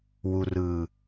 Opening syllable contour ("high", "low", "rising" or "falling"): low